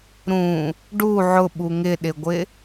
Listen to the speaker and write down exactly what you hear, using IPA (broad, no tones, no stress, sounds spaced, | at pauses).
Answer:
ɾ ũ | ɖ u ʕ ʊ ɓ u ŋ ɪ ɗ ɪ ɡʷ ɪ